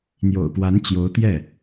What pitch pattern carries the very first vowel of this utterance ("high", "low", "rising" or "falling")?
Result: low